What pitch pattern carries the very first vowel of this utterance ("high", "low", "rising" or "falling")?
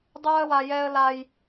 high